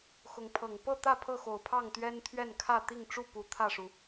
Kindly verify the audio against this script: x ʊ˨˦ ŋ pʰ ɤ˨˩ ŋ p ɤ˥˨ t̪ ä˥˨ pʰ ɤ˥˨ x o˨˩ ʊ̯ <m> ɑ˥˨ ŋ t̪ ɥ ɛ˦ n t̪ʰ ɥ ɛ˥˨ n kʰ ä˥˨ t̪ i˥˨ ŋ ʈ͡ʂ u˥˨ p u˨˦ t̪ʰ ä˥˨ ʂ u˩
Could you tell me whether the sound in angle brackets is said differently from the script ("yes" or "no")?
yes